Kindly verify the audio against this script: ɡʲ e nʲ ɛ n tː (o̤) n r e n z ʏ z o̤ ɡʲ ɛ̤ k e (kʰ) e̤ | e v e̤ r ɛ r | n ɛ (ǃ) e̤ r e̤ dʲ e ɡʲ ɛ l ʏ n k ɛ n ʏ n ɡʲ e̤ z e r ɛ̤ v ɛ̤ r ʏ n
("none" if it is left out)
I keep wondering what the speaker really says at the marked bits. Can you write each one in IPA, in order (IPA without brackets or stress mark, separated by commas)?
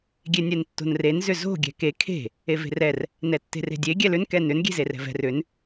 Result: o̤, kʰ, tː